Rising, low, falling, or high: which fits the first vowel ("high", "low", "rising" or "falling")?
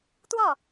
falling